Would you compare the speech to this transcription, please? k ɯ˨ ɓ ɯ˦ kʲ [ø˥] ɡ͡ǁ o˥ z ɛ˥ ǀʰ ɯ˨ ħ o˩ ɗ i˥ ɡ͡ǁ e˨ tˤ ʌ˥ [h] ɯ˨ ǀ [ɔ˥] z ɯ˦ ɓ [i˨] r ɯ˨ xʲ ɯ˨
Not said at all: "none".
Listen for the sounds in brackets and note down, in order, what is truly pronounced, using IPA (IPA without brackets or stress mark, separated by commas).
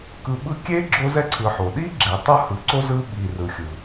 e˥, h, o˥, i˨